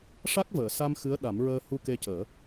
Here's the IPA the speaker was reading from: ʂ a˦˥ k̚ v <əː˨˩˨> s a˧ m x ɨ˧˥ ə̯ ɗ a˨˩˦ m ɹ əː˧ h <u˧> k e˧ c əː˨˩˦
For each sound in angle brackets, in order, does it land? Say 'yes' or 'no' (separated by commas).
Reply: yes, yes